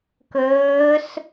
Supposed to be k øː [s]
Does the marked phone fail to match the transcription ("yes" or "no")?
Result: no